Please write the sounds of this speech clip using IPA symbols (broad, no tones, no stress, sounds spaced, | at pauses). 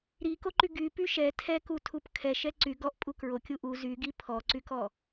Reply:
ɾ i k o ǃ y ɡ y p y ʃ ɛ tʰ ɛ k u tʰ u p kʰ ɛ ʃ ɛ ǀ y ɡ ɔ ʔ pʼ u k ɹ o kʲ u ʔ u z y ɡ i pʰ ɔ ǀ y k ɔ